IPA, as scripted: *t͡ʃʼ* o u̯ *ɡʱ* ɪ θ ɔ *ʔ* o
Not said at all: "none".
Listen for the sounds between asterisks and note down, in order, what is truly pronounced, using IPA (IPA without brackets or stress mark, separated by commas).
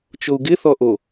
t͡ʃ, ɡ, ʔ